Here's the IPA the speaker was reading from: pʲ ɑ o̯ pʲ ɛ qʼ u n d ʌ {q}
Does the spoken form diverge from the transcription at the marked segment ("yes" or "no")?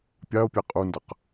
no